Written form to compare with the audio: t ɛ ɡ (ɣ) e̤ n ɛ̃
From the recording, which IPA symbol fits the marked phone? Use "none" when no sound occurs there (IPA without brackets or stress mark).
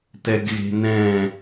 ɣ